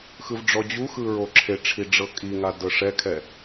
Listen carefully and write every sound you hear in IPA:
x ɯ v ɖ͡ʐ ɔ d͡ʑ u x ɯ ɹ o ǁʰ e ʈ͡ʂʰ i ɖ͡ʐ ɤ kʼ i ŋ a d ɤ ʂ ɛ kʰ ɛ

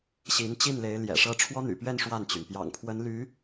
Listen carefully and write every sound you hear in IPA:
ɕ i˧˥ n t͡ɕ i˥˩ n l e˧˥ ɪ̯ l j ɛ̰˨˩ ʂ ɤ˥ ʈ͡ʂʰ w ɔ˥ n̪ y̰˨˩ p ɥ ɛ˥˧ n ʂ w a˥˩ n t͡ɕ y˩ n p j ɑ̰˨˩ ŋ pʰ w ə˧˥ n l y˧˥

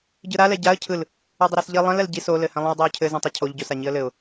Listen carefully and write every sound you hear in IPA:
ɟ ɯ ɾ a l ɛ ɟ a ə̯ cʰ ɯ l | ɯ dˤ ə ɾ æ s ʎ i lˠ ɛ̃ l ɛ l ɟ i s o l ɘ h ɛ̃ lˠ ĩ ʊ̯ dˤ æ ʊ̯ cʰ ɘ z ĩ tˤ ɛ cʰ o ʎ ɟ o s a ɲ i ə̯ l ɘ ʊ̯

